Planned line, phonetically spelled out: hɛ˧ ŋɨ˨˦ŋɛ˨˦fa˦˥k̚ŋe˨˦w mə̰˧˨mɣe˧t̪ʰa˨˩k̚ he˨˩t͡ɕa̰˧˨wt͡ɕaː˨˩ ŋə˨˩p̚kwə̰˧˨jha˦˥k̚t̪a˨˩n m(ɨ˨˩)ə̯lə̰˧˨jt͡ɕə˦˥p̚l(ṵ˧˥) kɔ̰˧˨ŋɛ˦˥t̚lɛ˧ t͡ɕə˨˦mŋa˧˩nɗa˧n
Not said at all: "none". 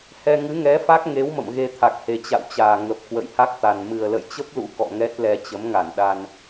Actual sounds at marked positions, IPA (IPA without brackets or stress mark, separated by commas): ɨ˨˩, ṵ˧˥